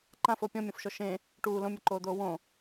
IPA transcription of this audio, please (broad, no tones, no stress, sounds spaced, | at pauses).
ǃ ã f o pʲ ɔ̃ mʲ ɔ̃ f ʃ ɔ ʃ ẽ | ʈ uː l õ mʲ ɔ ǃ oː d̪ oː w õ